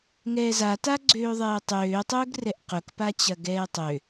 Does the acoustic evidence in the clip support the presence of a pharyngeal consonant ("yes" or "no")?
no